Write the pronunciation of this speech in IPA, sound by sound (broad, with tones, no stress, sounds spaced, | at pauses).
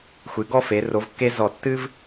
xʷ ɨ˩˧ ɡ ɔ˥˧ f e˩˧ r o˩˧ v kː e˧ z ɔ˧˩ tː ɨ˥ v